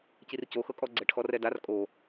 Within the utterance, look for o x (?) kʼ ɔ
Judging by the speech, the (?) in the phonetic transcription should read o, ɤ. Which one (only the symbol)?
ɤ